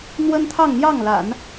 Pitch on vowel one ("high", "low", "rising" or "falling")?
high